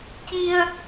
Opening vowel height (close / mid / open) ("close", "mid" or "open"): close